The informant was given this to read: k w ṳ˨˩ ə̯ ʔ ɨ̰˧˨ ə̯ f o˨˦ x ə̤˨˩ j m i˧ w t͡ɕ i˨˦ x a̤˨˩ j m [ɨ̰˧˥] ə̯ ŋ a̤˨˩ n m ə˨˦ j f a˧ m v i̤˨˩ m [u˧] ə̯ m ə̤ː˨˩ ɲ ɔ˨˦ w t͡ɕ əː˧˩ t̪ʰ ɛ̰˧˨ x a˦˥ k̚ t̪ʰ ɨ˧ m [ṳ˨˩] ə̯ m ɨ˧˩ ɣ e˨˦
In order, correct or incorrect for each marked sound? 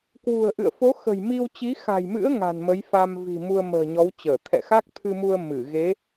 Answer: correct, correct, incorrect

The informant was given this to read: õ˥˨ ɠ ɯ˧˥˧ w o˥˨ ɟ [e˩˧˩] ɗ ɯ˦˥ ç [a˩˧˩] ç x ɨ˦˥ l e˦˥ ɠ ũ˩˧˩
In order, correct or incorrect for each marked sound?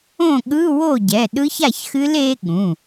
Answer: incorrect, incorrect

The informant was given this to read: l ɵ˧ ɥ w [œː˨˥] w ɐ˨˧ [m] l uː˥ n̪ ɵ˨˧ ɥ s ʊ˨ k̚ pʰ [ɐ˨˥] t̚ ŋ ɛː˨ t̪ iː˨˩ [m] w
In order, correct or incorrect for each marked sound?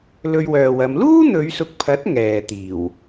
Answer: incorrect, correct, correct, incorrect

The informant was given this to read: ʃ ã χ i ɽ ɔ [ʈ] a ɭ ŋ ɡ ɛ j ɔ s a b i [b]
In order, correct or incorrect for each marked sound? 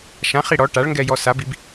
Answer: correct, correct

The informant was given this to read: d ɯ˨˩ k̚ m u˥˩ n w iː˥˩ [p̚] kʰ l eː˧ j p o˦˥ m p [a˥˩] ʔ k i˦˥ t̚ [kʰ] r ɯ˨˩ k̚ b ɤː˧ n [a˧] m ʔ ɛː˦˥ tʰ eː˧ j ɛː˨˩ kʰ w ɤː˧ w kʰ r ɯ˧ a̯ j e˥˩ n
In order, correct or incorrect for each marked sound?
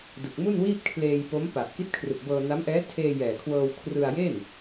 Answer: correct, incorrect, correct, incorrect

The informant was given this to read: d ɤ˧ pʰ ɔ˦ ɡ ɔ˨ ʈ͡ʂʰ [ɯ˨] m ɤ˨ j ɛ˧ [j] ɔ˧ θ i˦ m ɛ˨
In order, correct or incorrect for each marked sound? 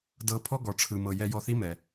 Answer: correct, correct

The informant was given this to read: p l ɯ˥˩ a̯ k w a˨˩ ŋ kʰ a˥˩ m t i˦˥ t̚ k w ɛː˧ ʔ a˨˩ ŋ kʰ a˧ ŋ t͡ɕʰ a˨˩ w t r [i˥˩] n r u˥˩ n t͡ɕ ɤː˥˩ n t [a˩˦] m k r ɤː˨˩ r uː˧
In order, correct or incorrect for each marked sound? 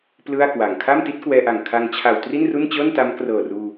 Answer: correct, incorrect

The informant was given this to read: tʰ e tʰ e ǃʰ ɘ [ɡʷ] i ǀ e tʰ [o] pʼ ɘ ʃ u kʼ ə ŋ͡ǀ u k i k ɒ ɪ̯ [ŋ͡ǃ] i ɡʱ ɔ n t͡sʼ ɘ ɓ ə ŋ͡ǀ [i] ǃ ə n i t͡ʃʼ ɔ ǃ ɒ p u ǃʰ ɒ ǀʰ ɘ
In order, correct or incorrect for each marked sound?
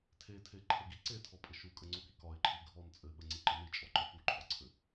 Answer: incorrect, incorrect, incorrect, correct

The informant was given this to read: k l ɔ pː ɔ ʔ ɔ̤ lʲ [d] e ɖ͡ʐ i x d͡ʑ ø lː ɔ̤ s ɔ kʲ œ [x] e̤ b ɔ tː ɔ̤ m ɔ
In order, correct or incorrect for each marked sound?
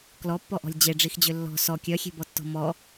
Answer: incorrect, incorrect

